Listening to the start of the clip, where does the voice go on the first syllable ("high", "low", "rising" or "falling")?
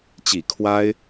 low